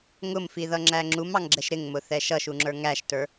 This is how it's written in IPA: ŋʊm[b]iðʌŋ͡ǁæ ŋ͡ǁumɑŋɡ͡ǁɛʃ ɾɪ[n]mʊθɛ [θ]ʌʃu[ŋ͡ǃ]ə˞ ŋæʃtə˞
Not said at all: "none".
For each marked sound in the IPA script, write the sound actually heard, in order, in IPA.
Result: f, ŋ, ʃ, ŋ͡ǁ

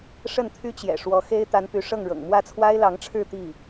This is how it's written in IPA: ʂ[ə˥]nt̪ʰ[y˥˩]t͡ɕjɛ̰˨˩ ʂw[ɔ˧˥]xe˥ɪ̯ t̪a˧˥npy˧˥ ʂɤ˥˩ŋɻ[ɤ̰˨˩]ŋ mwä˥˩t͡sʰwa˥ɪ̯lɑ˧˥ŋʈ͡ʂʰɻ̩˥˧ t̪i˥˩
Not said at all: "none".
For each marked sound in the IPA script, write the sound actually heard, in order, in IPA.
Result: ə˥˩, y˥, ɔ˧˥, ɤ̰˨˩

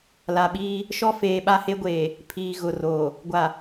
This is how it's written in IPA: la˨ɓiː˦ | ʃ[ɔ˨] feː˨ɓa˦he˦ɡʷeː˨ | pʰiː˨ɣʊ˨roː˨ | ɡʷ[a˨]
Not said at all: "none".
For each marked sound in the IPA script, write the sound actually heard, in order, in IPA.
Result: ɔ˦, a˨

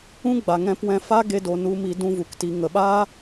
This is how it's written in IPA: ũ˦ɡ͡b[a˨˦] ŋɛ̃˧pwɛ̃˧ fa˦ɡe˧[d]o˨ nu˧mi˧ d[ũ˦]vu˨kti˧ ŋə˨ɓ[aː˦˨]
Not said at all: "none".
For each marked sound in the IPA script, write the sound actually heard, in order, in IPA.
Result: a˨, d, ũ˦, aː˦

